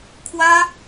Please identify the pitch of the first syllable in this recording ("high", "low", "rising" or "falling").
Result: high